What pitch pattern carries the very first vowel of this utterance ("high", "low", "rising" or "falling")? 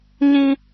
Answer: high